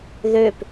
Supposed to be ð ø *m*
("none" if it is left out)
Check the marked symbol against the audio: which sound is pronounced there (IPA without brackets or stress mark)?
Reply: p